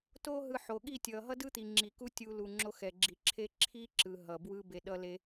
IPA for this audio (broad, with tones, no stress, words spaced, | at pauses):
to˦ ɦɯ˧ ħo˨ɠi˦˨tʲʌ˨ ɦʌ˦dɯ˦t̪i˨ ŋ͡ǁi˨ku˦ tʲu˧lu˨ ŋ͡ǁo˧xɛ˨ɡ͡ǁi˨ǁʰe˦ ǁʰi˦ǁɯ˨ ɦʌ˨bwɯ˦ be˧ɗʌ˦le˦